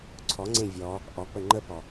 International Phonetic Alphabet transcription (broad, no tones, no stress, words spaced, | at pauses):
ǀʰɔŋ͡ǀẽ vʲɔ | ʔɔk͡pə ŋ͡ǃəpɔ